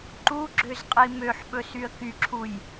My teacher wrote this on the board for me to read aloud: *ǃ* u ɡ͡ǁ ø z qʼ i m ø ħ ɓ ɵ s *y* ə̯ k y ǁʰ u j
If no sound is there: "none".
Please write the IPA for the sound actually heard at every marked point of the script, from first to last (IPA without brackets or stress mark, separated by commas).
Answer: ǃ, y